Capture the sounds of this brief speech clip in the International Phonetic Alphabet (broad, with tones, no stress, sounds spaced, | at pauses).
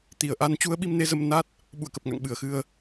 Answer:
t̪ i˧˩ ə̯ ʔ a˧ n t͡ɕ u˧ ə̯ ɓ i˧ m n e˨˦ z ə˧ m n a˦˥ t̚ | ɓ ṵ˧˨ ə̯ k ə˨˩ p̚ ŋ a̰˧˨ ŋ ɓ ɨ˧˩ ə̯ x ɨ˧ ə̯